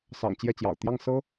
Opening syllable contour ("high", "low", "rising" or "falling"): low